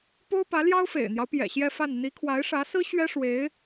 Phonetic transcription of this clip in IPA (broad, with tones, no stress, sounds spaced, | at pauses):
p o˥ ʊ̯ p ä˧˥ l j ɑ˥ ʊ̯ f ḛ˨˩ ɪ̯ n̪ j ɑ˦ ʊ̯ p j ɛ̰˨˩ ɕ j ɛ˥˧ f a˥˩ n n̪ i˧˥ kʰ w a˧˥ ɪ̯ ʂ ä˧˥ s ɹ̩˥ ɕ ɥ ɛ˥ ʂ w e˧˥ ɪ̯